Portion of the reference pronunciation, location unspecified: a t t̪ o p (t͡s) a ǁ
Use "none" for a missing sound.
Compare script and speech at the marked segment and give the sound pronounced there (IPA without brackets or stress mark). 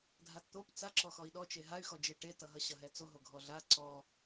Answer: t͡s